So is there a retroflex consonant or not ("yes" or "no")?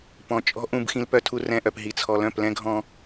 no